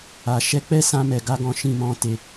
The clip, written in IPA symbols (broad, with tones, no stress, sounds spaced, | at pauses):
a˨ ʃ ɛ˧ k͡p ɛ˦ s ã˧ m ɛ˨ ɡ a˧ ɡ ɔ̃˨ ʃ ĩ˨ m ɔ̃˨ t e˨